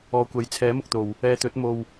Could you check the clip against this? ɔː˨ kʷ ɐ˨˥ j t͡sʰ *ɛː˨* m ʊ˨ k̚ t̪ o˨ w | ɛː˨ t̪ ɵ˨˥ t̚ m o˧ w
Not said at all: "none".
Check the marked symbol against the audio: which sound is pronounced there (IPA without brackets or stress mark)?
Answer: ɛː˨˥